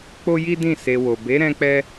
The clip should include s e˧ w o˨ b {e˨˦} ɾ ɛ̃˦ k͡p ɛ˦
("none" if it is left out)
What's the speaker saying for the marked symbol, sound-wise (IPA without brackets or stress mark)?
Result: e˨˦